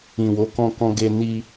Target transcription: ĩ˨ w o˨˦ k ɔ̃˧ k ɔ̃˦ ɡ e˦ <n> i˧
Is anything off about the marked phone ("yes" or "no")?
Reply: no